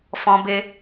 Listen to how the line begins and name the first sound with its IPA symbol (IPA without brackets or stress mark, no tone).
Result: f